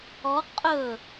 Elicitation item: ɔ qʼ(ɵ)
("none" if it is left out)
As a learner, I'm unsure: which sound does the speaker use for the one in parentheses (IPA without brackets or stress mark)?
ɵ